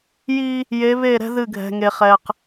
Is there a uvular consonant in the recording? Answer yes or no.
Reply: yes